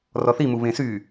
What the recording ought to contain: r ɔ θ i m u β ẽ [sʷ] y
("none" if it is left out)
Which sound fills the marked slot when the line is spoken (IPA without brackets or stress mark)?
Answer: s